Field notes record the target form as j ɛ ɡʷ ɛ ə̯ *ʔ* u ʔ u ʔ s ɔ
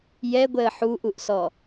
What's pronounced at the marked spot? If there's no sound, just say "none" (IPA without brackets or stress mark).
ħ